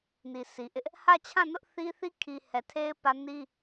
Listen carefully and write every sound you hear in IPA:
n i˨ s i˨ ʔ ɪ˦ ʔ | h ä˦˨ t͡ɕʰ ã˦˨ n ʊ˦ ʔ θ i˦ θ i˦ kʰ i˨ h ɛ˨ tʰ e˦ ɪ̯ p ä˦ n i˦

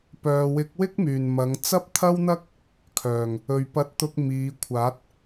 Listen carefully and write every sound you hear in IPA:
p œː˨ w ɪ˨˥ k̚ w ɪ˥ k̚ m yː˨˩ n m ɐ˨˧ ŋ t͡s ɐ˥ p̚ t̪ʰ ɐ˥ w n̪ ɐ˥ k̚ | kʰ œː˨˩ ŋ | ɵ˨ ɥ p ɐ˧ t̚ t̪ ʊ˧ k̚ m iː˨˧ kʷʰ aː˨˥ t̚

